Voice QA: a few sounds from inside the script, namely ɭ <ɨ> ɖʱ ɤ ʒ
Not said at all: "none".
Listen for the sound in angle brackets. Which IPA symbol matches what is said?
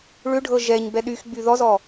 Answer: ʏ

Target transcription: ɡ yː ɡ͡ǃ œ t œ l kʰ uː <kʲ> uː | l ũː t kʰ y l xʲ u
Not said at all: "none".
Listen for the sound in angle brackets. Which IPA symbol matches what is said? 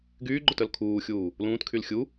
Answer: xʲ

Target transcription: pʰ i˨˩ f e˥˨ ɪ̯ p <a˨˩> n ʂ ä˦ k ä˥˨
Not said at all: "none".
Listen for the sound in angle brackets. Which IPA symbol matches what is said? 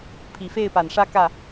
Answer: a˨˩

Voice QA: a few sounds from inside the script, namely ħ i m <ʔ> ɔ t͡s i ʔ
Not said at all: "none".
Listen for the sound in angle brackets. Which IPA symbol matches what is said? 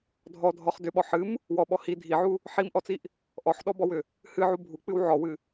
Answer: ʔ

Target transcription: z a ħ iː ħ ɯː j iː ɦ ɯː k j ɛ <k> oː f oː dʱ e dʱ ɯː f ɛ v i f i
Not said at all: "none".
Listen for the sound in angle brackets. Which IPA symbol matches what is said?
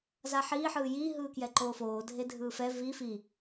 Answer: ǃ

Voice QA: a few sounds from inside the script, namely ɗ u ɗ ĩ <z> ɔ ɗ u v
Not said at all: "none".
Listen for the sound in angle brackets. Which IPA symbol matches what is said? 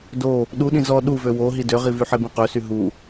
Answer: z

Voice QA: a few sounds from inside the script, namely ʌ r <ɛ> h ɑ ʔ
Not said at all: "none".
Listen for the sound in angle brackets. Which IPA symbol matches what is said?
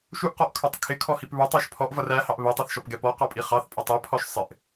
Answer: æ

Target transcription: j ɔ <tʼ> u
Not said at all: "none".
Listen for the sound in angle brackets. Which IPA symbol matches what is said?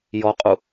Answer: qʼ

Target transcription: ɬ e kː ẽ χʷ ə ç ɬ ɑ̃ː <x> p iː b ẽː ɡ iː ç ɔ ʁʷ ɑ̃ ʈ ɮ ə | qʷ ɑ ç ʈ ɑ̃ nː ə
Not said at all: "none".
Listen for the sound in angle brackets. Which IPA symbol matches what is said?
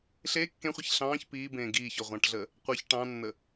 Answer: ç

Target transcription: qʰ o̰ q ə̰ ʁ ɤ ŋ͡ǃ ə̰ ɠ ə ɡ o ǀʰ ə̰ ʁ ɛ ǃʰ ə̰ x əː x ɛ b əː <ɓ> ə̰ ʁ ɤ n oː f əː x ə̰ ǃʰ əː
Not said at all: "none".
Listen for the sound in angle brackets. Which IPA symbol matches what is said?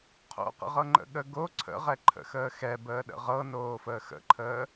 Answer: ɗ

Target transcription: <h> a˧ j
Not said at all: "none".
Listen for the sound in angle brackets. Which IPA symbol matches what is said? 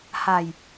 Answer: h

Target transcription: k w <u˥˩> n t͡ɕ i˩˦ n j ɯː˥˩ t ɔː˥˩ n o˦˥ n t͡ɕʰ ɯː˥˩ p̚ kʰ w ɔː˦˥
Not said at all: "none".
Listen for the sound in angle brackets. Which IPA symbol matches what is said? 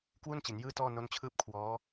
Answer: u˥˩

